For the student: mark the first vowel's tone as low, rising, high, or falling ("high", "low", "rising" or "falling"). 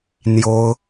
high